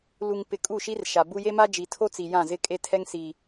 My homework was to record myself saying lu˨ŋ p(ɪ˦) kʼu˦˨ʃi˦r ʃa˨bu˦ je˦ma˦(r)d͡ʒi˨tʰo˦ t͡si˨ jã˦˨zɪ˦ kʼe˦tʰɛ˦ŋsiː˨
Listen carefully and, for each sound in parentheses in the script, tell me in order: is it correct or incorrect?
incorrect: ɪ˨, incorrect: none

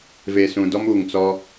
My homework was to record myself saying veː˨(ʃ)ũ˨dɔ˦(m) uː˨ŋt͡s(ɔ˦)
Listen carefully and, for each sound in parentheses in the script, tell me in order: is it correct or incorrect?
incorrect: s, correct, correct

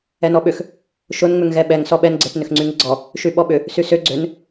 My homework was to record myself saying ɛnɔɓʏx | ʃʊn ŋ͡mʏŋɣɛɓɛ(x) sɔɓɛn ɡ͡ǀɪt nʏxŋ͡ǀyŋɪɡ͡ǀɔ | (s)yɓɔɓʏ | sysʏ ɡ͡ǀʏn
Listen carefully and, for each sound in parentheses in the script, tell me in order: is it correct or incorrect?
incorrect: ŋ, incorrect: ʃ

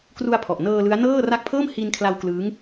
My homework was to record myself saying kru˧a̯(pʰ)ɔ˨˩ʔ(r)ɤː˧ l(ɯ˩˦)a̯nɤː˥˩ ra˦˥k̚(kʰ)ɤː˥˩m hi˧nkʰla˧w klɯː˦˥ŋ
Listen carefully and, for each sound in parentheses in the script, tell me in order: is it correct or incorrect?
correct, incorrect: n, incorrect: ɯ˦˥, incorrect: pʰ

